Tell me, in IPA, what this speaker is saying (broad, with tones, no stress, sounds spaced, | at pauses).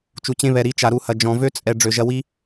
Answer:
t͡ʃ u˨ t͡ɕ ẽ˧ β ɛ˨ ɾ i˨˦ t͡ʃ a˨ ɾ u˧ h ɐ˨ d͡ʒ ɔ̃˨ v ø˦ t͡sʼ ɛ˨ ɖ͡ʐ ø˨ ʒ ɐ˧ w i˦